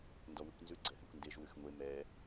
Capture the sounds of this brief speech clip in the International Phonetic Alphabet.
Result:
ndɔwʉkʷnzʉ ɡ͡ǀɛɦɛkʷndeʒ wʉxŋʷe mɛ

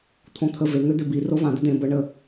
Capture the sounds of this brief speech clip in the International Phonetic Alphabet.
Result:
t̪ʰõt̪ʰə ve ŋʏ d̪ʏ bi rovã d̪əd̪ẽ bə ɳə

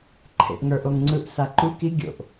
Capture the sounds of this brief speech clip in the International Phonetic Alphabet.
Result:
ǃʰḛʔŋə˞ʔoŋŋ͡ǀɯʔ saǃuk i ɡʲo̰ʔ

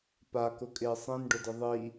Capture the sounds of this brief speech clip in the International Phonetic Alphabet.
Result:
pakʊkʼɪː sˤĩnɖʊdɪ ðˤi

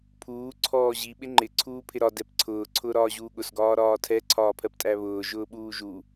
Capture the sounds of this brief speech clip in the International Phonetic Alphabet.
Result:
pʰuː ǀʰɔːʑi ɓɪŋ͡ǃɪ ǀʰuːpʰɪɾɒ dɛpǀʰʊː ǀʰʊːɾɒːʑuːɠʊs ɡɒːɾɒːtʰɛ ǀʰɒːpʰɜptʼæβʊː ʒʊːɓuːʒu

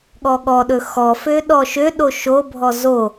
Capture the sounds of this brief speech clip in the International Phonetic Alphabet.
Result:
ɠɔɠɔɗɵ xɔfø ɗɔʃøɗo ʃobʱɔ zo

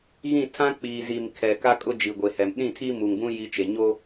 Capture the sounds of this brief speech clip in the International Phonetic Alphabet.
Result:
ɣĩ˦˨tʰã˦ k͡piː˨zi˨m kʰɛ˨ka˦ kʼʊ˦d͡ʒi˨ ɡʷe˨hɛ˨m ɗĩ˦˨tʰi˦mu˨ŋbũ˦ ji˦t͡ʃe˨ ɲo˦

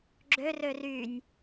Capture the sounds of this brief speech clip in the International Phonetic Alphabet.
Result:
ɡ͡ǁø rørynʲ

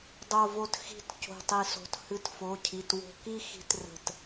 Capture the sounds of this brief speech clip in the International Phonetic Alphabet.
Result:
dˤo˧˩vo˧t xi̤˧t co̤˧˩tˤi˧˩so̤˧˩t hɨ˧˩tfo˩˧˩cʰi˩˧˩t wo̤˧ki˥˧ xi̤˧trə̤˧˩t

